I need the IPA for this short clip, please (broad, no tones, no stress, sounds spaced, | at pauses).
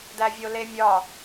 d æ vʲ o l e mʲ ɒ